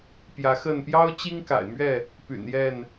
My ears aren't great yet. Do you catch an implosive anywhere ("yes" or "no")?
no